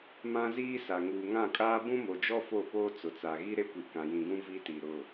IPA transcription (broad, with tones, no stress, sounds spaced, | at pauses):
m ã˦ z iː˦ s a˨ ŋ uː˨ ŋ ã˦˨ kʼ aː˦ b ũ˦ m o˨ d͡ʒ ɔ˦ f o˦˨ p oː˦ t͡s ʊ˨ t͡s a˨ ɣ i˦ ɾ e˦ kʷ i˨ k ã˨ j ĩ˨ ɡ ũ˦ v i˦ t i˨ ɾ ʊ˦˨